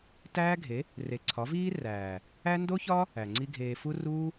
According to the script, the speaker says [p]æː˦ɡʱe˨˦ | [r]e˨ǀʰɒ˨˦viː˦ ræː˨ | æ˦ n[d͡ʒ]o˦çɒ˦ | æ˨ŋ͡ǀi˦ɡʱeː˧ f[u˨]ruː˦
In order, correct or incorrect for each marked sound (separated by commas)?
incorrect, correct, incorrect, incorrect